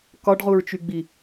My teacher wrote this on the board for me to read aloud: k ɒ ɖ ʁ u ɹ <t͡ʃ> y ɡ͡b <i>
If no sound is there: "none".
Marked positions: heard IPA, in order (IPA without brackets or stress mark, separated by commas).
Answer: t͡ʃ, i